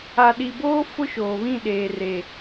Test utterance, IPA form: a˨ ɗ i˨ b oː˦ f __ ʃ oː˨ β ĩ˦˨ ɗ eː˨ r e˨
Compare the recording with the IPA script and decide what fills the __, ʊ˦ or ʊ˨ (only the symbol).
ʊ˦